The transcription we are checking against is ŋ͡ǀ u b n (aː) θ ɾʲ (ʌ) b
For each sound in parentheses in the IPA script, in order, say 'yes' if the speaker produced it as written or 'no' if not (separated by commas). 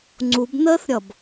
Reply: no, yes